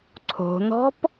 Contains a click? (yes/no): yes